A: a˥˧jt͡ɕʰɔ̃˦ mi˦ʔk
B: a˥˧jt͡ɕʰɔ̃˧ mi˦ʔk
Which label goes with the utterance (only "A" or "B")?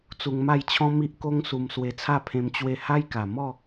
A